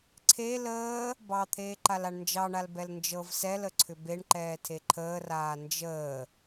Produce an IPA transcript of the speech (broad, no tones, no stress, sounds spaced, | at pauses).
ǀʰ e l əː | b ɑ t̪ʰ eː ǃ a l a ɳ n d͡ʒ ɑ ɳ a l b ɛ l n d͡ʒ ɤ v s ɛ l ə ǀʰ ʏ b e ɳ ǃ ɛː tʰ e ǃʰ əː r aː n d͡ʒ əː